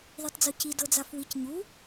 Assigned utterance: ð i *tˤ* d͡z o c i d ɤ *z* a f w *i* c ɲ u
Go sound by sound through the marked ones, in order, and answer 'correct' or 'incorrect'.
correct, incorrect: d͡z, correct

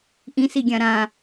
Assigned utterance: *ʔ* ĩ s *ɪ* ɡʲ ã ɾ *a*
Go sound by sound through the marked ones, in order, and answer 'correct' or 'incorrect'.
correct, incorrect: i, incorrect: ã

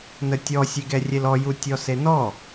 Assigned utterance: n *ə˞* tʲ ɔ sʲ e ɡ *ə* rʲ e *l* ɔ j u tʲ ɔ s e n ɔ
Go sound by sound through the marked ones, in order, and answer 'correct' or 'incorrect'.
incorrect: ə, incorrect: ɛ, correct

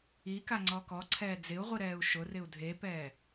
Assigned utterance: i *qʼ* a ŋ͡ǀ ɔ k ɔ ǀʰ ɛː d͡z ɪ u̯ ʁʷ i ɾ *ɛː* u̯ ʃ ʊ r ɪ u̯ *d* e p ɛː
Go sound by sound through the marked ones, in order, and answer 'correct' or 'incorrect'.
incorrect: k, correct, incorrect: dʱ

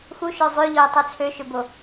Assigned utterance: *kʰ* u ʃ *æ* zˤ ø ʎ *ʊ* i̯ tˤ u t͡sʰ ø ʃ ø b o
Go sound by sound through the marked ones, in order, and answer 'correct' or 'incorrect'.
incorrect: x, incorrect: œ, incorrect: ɔ

